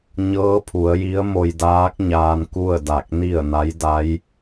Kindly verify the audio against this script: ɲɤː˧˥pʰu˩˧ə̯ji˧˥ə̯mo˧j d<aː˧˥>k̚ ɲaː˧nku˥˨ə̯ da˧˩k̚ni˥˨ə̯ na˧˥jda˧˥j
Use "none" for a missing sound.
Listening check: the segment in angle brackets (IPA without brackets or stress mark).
aː˧˥